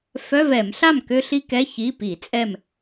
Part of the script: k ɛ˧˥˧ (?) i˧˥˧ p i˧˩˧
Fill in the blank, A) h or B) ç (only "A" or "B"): B